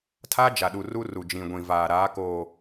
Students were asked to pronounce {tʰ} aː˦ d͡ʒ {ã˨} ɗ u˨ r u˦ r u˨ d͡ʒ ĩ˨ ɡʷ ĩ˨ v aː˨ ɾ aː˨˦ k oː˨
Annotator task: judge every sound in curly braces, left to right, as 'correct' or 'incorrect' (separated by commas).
correct, incorrect